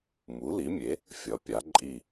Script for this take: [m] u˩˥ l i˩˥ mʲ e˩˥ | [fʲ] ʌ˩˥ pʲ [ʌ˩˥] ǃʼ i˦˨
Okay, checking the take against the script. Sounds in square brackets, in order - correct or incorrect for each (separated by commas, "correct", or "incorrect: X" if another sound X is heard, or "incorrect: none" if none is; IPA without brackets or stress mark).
correct, correct, incorrect: a˩˥